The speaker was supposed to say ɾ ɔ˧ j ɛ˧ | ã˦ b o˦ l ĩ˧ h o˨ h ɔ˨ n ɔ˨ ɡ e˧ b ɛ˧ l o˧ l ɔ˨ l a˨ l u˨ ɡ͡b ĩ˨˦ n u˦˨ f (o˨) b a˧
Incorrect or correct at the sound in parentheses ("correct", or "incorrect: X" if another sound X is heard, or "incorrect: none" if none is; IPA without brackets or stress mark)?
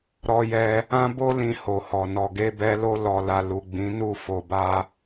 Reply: correct